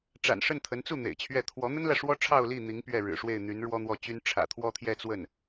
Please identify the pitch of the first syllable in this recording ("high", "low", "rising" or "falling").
low